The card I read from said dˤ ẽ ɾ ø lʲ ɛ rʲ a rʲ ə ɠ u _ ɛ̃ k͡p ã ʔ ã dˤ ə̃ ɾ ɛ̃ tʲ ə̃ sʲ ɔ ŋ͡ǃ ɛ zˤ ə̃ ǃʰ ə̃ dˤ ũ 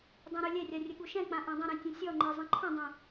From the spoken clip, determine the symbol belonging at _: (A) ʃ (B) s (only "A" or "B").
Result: A